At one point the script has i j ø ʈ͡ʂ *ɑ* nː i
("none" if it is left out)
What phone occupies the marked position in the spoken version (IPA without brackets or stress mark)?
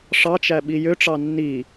ɑ